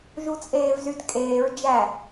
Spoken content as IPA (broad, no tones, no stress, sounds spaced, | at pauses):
ʒ u t͡sʼ eː v z y d kʼ eː ɹ d͡ʒ æ